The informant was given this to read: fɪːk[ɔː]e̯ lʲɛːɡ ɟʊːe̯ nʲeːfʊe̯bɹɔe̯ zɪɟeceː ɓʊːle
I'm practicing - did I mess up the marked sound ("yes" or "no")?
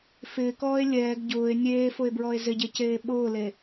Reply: no